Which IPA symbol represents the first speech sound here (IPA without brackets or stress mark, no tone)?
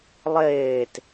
lˠ